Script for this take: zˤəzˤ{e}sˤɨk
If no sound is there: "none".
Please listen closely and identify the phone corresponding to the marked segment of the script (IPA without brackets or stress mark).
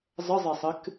e